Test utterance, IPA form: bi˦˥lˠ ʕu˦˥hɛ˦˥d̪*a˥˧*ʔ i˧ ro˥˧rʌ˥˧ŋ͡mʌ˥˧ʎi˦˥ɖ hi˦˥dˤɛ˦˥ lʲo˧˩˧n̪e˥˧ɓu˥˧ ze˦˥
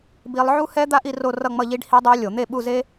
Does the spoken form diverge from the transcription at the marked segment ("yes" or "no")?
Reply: yes